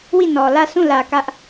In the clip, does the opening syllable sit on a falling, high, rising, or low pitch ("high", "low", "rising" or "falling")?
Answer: falling